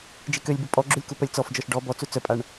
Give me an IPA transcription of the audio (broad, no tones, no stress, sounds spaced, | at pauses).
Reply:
d͡ʒ i k ø lʲ b u pʼ ɔ ɡ͡ǁ u lʲ k u p œ lʲ t͡s ɔ f d͡ʒ ɔ ʃ ɖ ɔ b ɔ t͡s u t͡s œ pʼ a ɳ